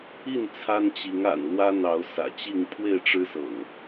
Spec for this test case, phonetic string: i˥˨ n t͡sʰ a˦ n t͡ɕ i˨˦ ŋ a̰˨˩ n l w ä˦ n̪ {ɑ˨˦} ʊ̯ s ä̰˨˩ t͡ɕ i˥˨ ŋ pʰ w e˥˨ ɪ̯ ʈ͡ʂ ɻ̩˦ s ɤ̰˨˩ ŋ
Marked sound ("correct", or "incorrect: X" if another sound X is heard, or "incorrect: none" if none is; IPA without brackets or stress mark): correct